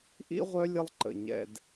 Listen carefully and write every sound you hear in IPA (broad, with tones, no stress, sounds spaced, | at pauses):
ʔ ḭ˦ ʁʷ œ˦ lʲ ə˦ lˠ ǃ ə̰˨ ɲ ɛ̰˨ d